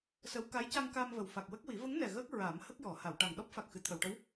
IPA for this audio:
sə˧˥w ka˧˥jca˧ŋ ka˧mvə˨˩w fa˨˩k̚wə˦˥k̚wi˨˩˦ və˧˥ŋnɛ˨˩ ɣəː˦˥k̚ ɹa˨˩˦m hə˦˥k̚jɔ˨˩˨ ha˨˩˨wʈa˨˩ŋ ɗɔ˦˥p̚fa˨˩k̚xɨ˨˩˨ t̪ʰə˨˩˨wʈə˧˥w

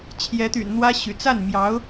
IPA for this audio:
t͡ɕʰjɛ˧˥t̪y̰˨˩nn̪wä˥ ɕy̰˨˩ t͡sa˥˩nmjɑ˧˥ʊ̯

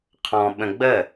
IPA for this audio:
qʰɔ̃ ɓə̃ɡ͡bə

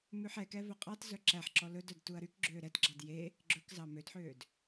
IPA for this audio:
mʉħɛkɛ vɵqʼɑt zœǁæħǁɔ lɵdœd tuɐ̯ɾykɡ͡ǁøː ɾɛtɡ͡ǁɑd je | ɡ͡ǁɵkzɑ mødħøːd

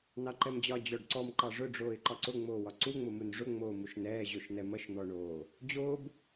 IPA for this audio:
nɑǃɛmd͡ʑɒ d͡ʑɔɖǀɔm ǃɑʐʊ ɖ͡ʐoːɪ̯ǃɒǀʊ ŋ͡moːwɒǀu ŋ͡mʊmunʐʊ ŋ͡moːmuʃnɛː ʑoʃnɛmʌʃ n̪ɔɳoː | d͡ʑoːb

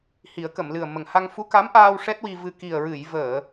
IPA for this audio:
hi˨˩˦ə̯kə˨˩˨mlɨ˨˩ə̯ mə˨˩ŋha˧ŋ fu˧˥ka˧˥mʔaː˧w ʂɛ˦˥t̚wi˧vɨ˧ ki˨˩ə̯ɹɨ˨˩˨j vəː˨˩˨

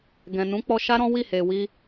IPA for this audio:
ɡɛ̃˨ nũ˨˦k͡pɔ˧ʃa˦ ɾɔ̃˦wi˦˨he˨ wi˧

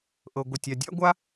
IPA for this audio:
ʔɤ˧ ɡʷɤ˧tʲa˧ dʲa̰˥ɡʷa˥

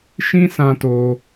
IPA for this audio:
ʃĩ˦sã˧to˧

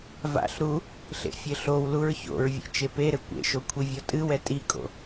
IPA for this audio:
va̰ɬɾu | ɬḛfʲɘɬowluɹ ço̰ɹvʲḛ t͡ʃepeɾɘ kʷḛʃo kʷʰivʲɔtʼɨwɛ tʼikʼo̰

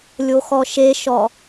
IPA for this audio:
lʲoxɔʃeʃɔ

